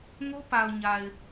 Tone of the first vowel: high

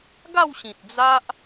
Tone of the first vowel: falling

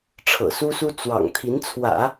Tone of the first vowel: low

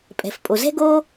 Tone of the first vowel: low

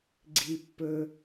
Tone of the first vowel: low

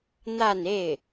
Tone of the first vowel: falling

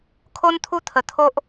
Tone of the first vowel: high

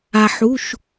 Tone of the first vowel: low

